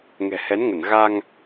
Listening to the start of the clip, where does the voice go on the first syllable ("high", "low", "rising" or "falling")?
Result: low